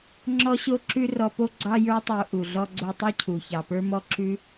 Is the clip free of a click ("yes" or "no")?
no